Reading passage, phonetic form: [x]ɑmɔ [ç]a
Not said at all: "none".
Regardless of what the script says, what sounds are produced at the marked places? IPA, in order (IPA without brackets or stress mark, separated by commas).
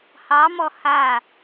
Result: h, h